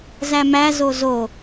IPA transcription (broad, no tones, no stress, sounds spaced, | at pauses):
z æ m æ z o z o